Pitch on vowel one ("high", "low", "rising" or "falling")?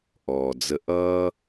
low